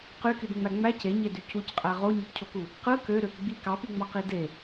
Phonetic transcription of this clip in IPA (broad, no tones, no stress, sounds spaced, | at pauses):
q y k y d ŋ͡m æ ŋ͡m æ c e ɲ e d y c u c qʼ æ ʁ o ɲ ɯ p cʰ o k u | q ɯ k ø ɾ ø p ɡ͡b i k ɑ p i ŋ͡m ɑ q i d e